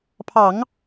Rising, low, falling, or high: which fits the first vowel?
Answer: low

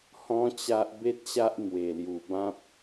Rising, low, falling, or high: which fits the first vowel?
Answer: high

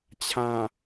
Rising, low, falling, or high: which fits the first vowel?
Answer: low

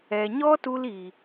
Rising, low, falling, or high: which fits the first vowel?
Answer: low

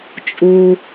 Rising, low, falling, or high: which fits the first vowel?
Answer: low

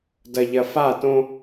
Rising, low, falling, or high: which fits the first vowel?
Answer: low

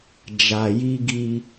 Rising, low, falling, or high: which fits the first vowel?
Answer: low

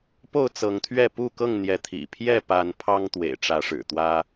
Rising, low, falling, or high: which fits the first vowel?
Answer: falling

